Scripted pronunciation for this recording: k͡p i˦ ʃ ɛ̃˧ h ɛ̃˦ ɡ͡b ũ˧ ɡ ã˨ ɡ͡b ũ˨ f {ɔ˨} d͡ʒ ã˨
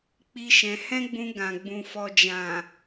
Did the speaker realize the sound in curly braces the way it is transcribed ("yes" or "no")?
yes